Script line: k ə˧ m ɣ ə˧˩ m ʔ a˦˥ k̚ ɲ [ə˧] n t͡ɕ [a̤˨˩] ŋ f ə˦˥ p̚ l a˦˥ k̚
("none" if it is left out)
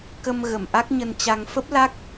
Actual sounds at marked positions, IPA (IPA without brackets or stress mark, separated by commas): ə˧, a˧